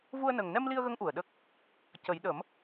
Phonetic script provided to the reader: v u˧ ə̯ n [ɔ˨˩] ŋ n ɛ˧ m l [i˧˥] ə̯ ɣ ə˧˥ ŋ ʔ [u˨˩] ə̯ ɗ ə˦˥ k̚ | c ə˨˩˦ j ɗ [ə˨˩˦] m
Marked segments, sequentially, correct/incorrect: incorrect: ə˨˩, incorrect: i˧, correct, correct

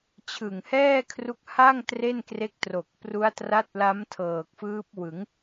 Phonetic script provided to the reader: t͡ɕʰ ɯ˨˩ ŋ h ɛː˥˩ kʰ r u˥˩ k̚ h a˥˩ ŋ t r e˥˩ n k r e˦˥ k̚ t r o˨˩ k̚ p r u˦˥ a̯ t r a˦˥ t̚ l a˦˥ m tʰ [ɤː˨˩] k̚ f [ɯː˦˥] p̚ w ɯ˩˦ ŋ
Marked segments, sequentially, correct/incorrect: correct, correct

